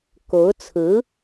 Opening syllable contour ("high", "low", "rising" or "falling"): rising